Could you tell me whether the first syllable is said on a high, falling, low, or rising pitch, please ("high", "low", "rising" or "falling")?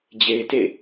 low